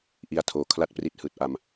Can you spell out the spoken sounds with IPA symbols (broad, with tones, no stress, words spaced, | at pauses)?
ʔi˧a̯tʰoː˨˩ kʰla˥˩t̚pri˦˥t̚ hɯː˨˩t̚ʔa˧m